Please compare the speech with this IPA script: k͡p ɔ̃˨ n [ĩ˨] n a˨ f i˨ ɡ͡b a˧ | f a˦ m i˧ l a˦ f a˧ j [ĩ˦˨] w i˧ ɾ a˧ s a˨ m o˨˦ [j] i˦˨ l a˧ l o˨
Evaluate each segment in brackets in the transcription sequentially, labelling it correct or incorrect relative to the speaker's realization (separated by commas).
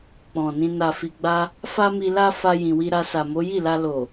incorrect, incorrect, correct